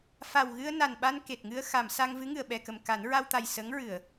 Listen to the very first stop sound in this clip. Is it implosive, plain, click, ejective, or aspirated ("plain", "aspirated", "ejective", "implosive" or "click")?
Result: implosive